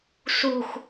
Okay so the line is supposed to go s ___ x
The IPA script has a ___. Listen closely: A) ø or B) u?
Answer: B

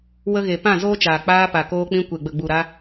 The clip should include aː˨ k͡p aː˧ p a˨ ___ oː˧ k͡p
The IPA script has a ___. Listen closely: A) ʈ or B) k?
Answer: B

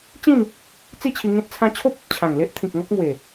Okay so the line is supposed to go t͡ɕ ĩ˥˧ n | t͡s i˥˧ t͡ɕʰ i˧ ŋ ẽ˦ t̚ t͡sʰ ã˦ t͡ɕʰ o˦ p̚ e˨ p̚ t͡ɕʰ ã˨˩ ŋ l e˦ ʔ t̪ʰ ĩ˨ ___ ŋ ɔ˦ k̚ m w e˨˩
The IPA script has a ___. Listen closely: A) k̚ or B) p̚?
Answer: A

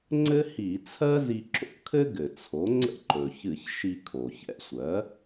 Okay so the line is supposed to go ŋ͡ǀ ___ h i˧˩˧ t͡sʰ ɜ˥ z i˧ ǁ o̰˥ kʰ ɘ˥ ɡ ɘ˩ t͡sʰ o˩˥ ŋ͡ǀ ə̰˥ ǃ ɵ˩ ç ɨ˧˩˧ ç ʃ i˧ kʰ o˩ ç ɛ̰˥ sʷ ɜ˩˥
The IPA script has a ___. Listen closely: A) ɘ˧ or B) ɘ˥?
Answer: B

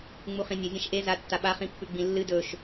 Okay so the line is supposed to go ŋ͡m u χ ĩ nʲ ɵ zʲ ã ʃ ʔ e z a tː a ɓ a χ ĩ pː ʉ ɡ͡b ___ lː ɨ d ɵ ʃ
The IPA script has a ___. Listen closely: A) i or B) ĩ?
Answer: B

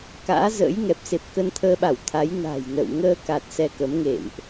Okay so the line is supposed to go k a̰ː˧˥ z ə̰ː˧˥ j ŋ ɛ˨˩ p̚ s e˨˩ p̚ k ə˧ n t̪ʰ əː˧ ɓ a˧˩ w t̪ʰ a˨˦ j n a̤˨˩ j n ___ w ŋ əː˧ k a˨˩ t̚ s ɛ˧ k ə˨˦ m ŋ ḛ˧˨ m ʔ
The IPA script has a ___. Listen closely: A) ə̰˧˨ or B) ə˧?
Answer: A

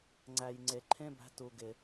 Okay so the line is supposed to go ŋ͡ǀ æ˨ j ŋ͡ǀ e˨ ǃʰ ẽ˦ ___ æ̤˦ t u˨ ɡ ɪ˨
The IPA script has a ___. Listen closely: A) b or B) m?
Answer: A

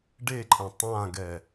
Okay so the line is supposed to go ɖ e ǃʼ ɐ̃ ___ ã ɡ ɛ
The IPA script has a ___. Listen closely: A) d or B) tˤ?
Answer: B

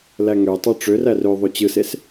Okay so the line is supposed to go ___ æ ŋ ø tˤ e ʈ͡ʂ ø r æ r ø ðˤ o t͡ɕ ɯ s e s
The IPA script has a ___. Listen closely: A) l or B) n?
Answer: A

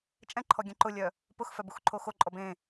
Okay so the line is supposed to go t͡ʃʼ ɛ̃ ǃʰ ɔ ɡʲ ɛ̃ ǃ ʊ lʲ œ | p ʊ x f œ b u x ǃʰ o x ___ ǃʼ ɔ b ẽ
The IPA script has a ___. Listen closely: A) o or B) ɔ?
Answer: A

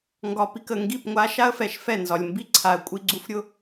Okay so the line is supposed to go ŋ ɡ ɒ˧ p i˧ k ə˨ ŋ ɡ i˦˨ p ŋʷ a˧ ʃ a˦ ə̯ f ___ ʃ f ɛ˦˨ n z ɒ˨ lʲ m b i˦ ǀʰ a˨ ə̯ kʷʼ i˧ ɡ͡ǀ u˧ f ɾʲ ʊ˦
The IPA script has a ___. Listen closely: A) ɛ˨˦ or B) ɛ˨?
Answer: B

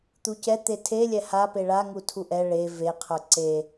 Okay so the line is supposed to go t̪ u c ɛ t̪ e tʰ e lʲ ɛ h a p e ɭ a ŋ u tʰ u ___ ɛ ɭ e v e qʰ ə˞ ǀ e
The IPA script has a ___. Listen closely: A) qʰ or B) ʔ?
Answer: B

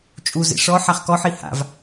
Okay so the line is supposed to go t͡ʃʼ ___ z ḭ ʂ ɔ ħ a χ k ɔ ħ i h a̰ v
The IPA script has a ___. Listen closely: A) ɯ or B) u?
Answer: B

